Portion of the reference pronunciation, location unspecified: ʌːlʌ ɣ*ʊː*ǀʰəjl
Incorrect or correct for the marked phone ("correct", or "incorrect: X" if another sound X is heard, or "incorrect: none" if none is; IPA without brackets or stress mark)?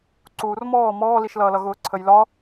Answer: correct